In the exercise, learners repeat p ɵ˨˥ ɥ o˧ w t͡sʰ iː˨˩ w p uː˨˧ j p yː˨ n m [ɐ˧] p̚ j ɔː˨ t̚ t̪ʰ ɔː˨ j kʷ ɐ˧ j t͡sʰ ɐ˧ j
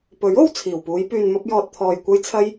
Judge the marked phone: correct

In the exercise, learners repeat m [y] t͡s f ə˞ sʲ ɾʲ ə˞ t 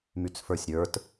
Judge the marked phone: correct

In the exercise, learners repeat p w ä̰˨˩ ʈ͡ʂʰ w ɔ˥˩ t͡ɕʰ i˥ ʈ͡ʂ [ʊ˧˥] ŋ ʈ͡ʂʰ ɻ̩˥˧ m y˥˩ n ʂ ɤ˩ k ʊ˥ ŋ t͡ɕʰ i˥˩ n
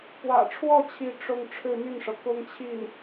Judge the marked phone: incorrect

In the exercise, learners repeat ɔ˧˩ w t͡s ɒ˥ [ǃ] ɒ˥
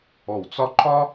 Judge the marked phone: correct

